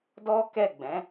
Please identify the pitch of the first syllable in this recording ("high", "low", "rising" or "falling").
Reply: high